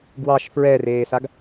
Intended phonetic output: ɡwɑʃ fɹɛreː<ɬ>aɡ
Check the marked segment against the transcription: incorrect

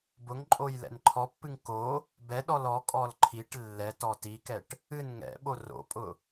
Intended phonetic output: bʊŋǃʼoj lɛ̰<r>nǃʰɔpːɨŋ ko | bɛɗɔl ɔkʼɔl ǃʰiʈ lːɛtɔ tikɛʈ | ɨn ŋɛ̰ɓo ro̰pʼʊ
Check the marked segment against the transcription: incorrect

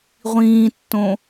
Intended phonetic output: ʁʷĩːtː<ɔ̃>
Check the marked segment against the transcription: incorrect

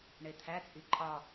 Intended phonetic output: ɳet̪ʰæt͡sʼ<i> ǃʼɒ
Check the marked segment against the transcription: correct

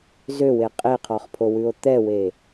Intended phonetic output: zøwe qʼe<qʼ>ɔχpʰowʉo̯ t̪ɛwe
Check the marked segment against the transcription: incorrect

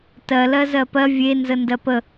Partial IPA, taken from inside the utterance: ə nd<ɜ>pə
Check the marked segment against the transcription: correct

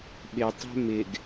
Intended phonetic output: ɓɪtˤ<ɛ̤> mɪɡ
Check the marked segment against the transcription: correct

